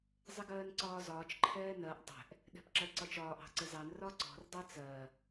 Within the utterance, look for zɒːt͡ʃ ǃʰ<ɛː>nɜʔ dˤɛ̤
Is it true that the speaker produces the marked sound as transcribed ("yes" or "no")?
yes